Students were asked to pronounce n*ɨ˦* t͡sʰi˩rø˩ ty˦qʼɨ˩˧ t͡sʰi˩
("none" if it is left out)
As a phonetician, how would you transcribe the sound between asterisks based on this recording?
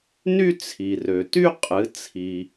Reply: y˦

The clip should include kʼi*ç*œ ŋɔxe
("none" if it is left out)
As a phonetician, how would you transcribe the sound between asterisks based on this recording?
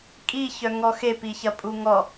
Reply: ç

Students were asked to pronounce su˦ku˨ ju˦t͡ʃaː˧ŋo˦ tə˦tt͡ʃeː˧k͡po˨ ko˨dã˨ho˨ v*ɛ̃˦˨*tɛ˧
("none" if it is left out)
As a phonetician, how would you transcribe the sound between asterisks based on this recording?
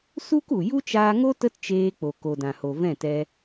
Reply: ɛ̃˦˨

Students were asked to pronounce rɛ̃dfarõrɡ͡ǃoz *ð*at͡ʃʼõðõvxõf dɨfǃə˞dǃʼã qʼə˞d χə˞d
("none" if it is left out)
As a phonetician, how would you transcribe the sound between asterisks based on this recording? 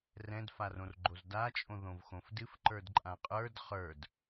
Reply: d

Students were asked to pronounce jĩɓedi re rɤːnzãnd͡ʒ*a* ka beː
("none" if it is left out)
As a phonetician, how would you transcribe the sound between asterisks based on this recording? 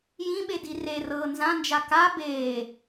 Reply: a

